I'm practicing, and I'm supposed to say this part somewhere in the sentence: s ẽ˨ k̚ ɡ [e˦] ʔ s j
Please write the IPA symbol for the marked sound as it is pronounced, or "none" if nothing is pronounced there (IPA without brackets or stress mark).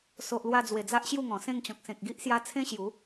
i˦